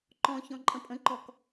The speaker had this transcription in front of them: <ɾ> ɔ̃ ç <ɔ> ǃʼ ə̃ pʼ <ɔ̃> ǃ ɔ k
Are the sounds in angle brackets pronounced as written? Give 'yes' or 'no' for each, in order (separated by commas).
no, no, no